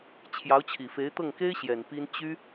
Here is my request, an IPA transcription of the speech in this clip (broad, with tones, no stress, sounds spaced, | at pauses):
t͡ɕʰ j ɑ˧˥ ʊ̯ t͡ɕʰ i˨˩ f e˧˥ ɪ̯ t̪ ɤ˥˩ ŋ k e˥ ɪ̯ ɕ j ɛ˨˩ n p i˥ n t͡ɕ y˥